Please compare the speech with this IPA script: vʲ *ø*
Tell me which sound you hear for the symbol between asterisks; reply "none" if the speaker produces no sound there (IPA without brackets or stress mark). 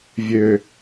ø